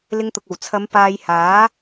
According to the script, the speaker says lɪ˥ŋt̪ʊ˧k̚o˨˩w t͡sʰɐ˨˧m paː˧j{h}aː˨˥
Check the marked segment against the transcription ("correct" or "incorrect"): correct